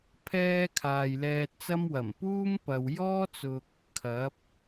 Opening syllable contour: high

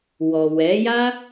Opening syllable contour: low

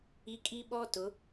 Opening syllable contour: high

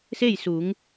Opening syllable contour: falling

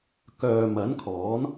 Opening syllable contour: low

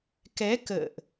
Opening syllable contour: rising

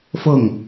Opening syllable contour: falling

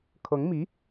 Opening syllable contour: rising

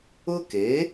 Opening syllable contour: high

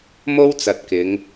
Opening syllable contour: high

